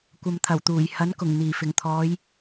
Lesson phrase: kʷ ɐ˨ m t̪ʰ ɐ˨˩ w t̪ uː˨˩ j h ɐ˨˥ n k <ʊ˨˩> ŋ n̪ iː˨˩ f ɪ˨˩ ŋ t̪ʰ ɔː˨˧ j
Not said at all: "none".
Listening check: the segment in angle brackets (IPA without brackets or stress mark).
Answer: ʊ˨˩